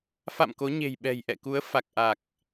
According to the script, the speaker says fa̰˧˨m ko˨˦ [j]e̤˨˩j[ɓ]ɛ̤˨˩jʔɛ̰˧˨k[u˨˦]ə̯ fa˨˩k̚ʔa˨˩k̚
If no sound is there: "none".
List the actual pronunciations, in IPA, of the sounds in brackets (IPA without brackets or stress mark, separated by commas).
ɲ, ɓ, u˨˦